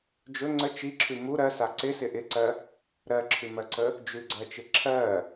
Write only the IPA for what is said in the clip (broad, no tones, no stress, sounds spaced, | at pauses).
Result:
d͡ʒ ɵ ŋ͡ǀ ə t͡ʃ i ǁʰ ʉ m u ɾ ɜ s a ǀ ɪ s ɪ ʔ ɪ ǀ ɜ | ɾ ɜ ǁʰ ʉ m ɜ ǀ ə | d͡ʒ ʉ ɡ͡ǀ ɜ t͡ʃ ɪ ǁʰ ɜ